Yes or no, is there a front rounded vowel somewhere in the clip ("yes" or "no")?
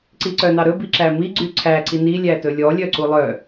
yes